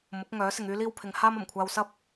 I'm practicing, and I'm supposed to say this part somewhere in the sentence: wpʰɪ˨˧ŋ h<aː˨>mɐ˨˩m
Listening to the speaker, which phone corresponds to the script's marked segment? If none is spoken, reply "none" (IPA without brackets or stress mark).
aː˥